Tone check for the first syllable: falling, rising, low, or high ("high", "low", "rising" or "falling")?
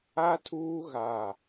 high